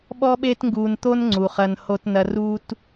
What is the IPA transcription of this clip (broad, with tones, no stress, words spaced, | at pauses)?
ɓɔ˦ɓeː˦tŋɡuː˧nt̪o˦n ŋ͡ǀu˨χɐ˧n ho˧tnɐ˧ ruː˧t